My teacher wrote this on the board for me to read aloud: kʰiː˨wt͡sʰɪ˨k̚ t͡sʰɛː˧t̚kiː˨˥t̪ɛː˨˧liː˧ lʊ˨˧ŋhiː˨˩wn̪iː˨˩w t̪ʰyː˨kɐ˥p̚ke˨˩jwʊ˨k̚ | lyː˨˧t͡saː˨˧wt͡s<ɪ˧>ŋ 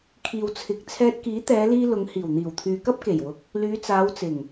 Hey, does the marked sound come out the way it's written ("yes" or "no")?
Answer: no